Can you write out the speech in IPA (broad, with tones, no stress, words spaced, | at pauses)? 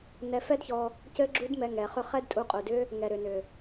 nɛ˧fɛ˦dçɔ˧ | cɘ˦ɡ͡ǁu˦dmɛ˧ ŋɛ˨χʏ˦ χɛ˦dtʼu˧qʼu˨dʏ˦ | ŋɛ˨ɾʏ˨nʏ˨